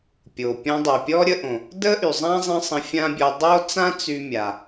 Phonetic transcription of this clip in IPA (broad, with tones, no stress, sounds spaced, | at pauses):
pʲ o˩ pʲ ɔ̃˧ dˤ o˩ pʲ ɔ˥ ɾʲ ə˧ ʔ õ˩ | d ə˥ ʔ y˩ zˤ ã˥ zˤ ə̃˥ sˤ ə̃˧ fʲ ã˥ bʲ ɔ˧ dˤ o˥ t͡s ã˥ t͡s y˧ mʲ a˩